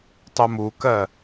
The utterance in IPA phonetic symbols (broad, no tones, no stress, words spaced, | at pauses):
tˤumukɜ